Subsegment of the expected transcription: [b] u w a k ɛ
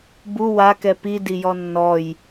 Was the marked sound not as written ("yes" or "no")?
no